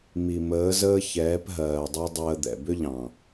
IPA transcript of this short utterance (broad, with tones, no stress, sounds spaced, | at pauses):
m i˨ m əː˨˦ z əː˦ ç ɛː˨˦ p ɦ ɜː˨ dˤ a˦ dˤ əː˧ d̪ ɛ̰˨ b ʏ˦ ʎ ɑ̃˨